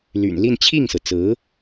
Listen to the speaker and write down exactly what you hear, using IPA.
l y̰˨˩ n l i˥˧ n t͡ɕʰ i˥˩ ŋ s ɹ̩˩ t͡s ɹ̩˧˥

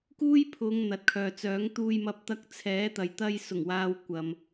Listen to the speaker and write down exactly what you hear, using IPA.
k uː˥ j pʰ ʊ˨˧ ŋ n̪ ɐ˨ t̚ kʰ œː˨ t͡s œː˨˥ ŋ t̪ uː˨ j m ɐ˨˥ p̚ t̪ ɐ˨˥ k̚ t͡sʰ ɛː˨˥ t̪ ɐ˨ j t̪ ɐ˧ j s ʊ˨˩ ŋ w aː˨ w kʷ ɐ˨ m

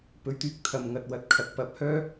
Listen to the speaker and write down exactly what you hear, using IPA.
p ɵ˨˧ ɥ t̪ yː˨˥ k̚ t̪ʰ ɐ˧ m ŋ ɐ˧ t̚ w ɐ˧ t̚ kʰ ɐ˨˥ k̚ p ɐ˨ p̚ h œː˥

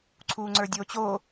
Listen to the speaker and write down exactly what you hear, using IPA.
ǀʰ uː ŋ͡ǀ ə˞ dʲ oː t͡ɕ o

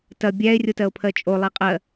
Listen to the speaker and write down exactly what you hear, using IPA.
t ɐ bʲ æ e̯ rʲ o t ɜ o̯ pʰ ɜ t͡ʃʼ o lˠ i qʼ ɜ

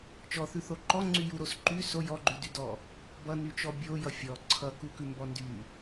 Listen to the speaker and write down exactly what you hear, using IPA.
t͡ʃ ɔ θ ʉ θ o ǃ ɔ ŋ͡ǀ y j u ɾ o s ǃ y s o j ɔ ɡ͡ǃ ʉ d y d ɔ | b ʌ n y t͡ʃ ɔ bʲ o j ʌ fʲ ɔ ǀʰ ʌ k u k ʉ m b ɔ n d y

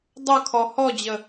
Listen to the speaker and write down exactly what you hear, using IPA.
dˤ ɐ kʰ ɔ h ɔ d͡ʑ ə

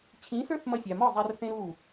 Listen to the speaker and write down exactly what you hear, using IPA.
t͡ɕʰ ĩ˨˦ s ə˞˦ θ m ʌ˧ sʲ a˨ m ɒ˦˨ zˤ a˧ r θ ẽ˦ ɾ u˦˨

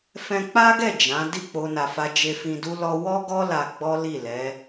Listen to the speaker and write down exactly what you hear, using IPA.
f ɛ̃˧ k͡p a˦ ɡ ɛ˦˨ d͡ʒ ã˨˦ d i˦˨ k͡p o˧ n a˨ f a˧ d͡ʒ e˧ f ĩ˧ d u˦ l ɔ˧ w ɔ˦ ɡ ɔ˦ l a˧ ɡ͡b ɔ˦ l i˦˨ l ɛ˨˦

